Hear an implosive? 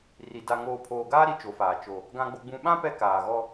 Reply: yes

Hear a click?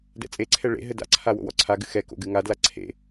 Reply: yes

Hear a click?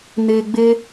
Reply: no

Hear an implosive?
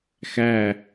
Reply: no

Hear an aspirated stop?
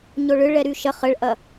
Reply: no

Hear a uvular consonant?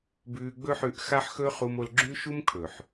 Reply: yes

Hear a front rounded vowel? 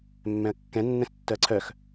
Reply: yes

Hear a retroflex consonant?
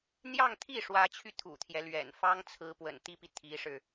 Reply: yes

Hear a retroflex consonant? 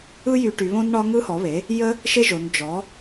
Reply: yes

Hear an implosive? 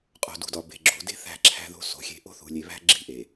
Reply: no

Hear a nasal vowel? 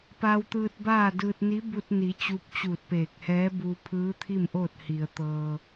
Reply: no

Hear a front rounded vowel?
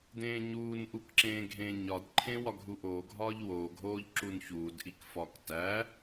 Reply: no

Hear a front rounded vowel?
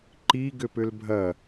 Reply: yes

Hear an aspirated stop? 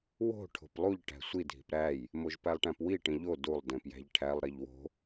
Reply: yes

